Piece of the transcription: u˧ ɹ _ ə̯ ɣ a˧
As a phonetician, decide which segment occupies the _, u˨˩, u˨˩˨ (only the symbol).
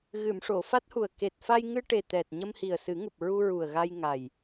u˨˩